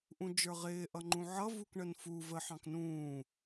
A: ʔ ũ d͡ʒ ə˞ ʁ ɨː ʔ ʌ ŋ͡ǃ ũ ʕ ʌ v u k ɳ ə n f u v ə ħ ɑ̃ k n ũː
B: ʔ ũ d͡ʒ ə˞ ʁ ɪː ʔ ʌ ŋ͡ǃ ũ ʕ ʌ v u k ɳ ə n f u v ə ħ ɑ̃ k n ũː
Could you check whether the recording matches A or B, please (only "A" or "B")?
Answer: B